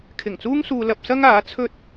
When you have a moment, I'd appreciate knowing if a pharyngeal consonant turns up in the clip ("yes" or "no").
no